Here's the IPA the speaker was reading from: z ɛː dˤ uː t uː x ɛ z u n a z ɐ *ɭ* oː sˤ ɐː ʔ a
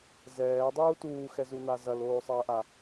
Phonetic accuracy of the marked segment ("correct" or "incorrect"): incorrect